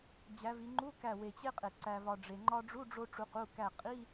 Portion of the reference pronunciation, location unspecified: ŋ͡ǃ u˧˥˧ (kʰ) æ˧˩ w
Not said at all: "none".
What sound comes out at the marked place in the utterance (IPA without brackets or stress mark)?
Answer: k